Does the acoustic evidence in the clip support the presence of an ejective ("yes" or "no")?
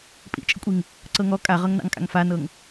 yes